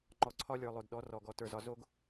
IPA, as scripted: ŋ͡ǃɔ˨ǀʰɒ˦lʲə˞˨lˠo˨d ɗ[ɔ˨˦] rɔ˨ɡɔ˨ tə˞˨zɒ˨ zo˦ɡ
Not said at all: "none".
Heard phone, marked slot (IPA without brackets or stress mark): ɔ˨˦